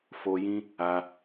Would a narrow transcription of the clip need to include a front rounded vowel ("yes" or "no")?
no